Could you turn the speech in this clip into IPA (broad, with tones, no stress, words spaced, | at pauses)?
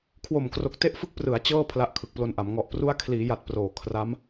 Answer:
kʰwo˨˩mkro˨˩k̚ te˦˥ʔfɯ˦˥k̚prɯ˩˦a̯ t͡ɕɤː˥˩ pʰla˦˥ʔkʰɯ˨˩k̚plo˧nʔa˩˦m ŋɔ˨˩ʔpru˦˥a̯ kʰliː˩˦ja˨˩t̚ proː˨˩ kʰra˦˥m